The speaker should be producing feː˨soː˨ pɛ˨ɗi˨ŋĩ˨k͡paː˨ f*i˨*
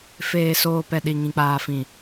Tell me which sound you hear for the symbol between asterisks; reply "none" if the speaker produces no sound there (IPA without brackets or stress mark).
ĩ˨